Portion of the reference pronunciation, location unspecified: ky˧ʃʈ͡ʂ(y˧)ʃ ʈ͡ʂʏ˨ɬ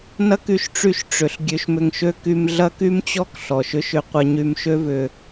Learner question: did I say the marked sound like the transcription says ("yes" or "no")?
yes